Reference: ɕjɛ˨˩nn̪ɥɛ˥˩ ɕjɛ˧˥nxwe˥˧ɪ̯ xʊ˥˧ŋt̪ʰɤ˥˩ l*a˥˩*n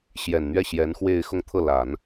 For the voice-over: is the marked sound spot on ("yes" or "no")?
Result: no